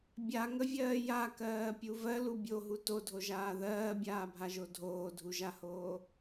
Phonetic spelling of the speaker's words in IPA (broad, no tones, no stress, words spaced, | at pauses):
bʲaŋəvʲɜː jakɜːpʲu vɜlu bʲoɦu todʱoʒaː ðɜːbʲaːbʱaʒo dʱoːdʱuʒahoː